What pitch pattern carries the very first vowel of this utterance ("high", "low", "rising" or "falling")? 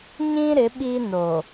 high